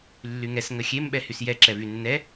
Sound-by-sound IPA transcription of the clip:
lː y ŋ ɛ s ŋ ə xʲ e m ɓ ɛ h y s j ɛ ǁ ɛ v y nː ɛ

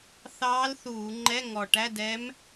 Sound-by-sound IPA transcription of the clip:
θ ɑː˧˥ l θ uː˧˩˧ ŋ͡ǃ ɛ˧˥˧ ŋ ɔ˨˩ ʈ æ˧˥˧ d ɛ˧˥ m

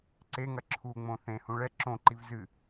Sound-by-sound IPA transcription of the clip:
ǀ e ŋ ɐ ǁʰ u ŋ͡m õ θ ẽ h ũ ɭ ɛ ǁ õ ǃ i v z ɨ

